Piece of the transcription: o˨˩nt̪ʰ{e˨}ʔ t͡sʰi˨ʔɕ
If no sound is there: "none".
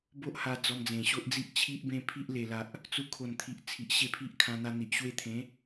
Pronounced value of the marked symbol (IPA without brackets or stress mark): i˨